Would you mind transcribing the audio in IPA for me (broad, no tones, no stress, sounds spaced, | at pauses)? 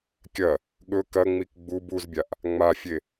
kʲ ɐ | ɠ ɵ k ɐ ŋ͡m i k ɡ͡b u b u z bʲ a ʔ | ŋ͡m a fʲ e